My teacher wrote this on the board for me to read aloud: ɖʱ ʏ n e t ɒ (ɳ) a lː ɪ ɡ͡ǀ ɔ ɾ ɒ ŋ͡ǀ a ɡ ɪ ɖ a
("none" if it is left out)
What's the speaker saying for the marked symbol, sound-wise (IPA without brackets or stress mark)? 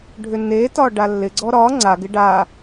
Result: ɖ